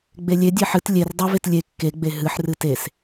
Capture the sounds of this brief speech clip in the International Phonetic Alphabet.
ɡ͡b e lʲ e dʲ e ħ ɨ t lʲ e r dˤ u v e t lʲ e kː e ɡ͡b e ɦ ɨ ħ r ɨ t e s

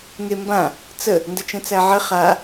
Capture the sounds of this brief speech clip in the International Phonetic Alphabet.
ŋ e m b ã | t͡s ə | n d ə t͡ʃ ə̃ t͡s æ ʕ ə χ a

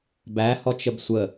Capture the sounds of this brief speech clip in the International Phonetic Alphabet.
b æ h ɔ t͡ʃ ə b sʷ ə

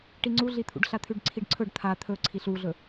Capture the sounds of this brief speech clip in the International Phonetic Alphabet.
ʈ i ŋ͡ǀ u ɮ i t̪ʰ ṵ ɖ ɬ a t̪ʰ ʉ ɖ ǀʰ i ɖ ǀʰ ɵ ɖ t̪ʰ a t̪ʰ ɵ ǀʰ i ɬ u ɮ ɵ

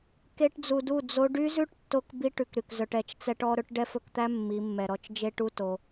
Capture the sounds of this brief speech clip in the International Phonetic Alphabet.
k e˦ ʈ d͡z u˧ d u˦˨ d͡z o˦ ɖ y˦ z ʉ˦ ʈ tː o˧ k b i˦ ʈ ʉ˧ k ɾ y˨ k z œ˧ ʈ ɛ˨ t͡ʃ t͡s ɛ˦ ʈ ɔ˦ ɾ ɵ˦ ʈ ɖ ɛ˦ f ɵ˧ k t̪ æ˦ mː i˨˦ mː ɛ˨ ɾ ɔ˧ t͡ʃ d͡ʒ e˦ ʈ u˦ t o˨

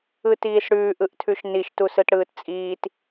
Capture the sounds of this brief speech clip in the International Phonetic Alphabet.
ɯ t iː s ɽ ʉː ʔ ɯ ʔ tʰ ʉ ʃ n i ʃ t u s ɯ t ɽ ɯː t t͡sʼ iː t

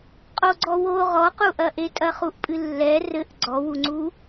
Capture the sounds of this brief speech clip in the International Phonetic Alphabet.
qʼ o ɡ͡ǀ ɔ w o ʁ ɔ q u ʔ ɐ ʔ e tʼ ɐ χ u ʔ pʼ ɨ lː ɛ r ɘ ʔ ɡ͡ǀ ɔ w u ŋ͡ǀ u

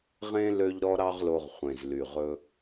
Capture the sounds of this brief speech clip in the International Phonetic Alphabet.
ʁ ẽ˦ l ø˦ ʎ ɾ ɔ˦ ɾ ɑ˦ ʁ l o˧ ʁ χʷ ẽ˨ z l y˨ ʁ ɵ˧

